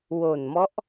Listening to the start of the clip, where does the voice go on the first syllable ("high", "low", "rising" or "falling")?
low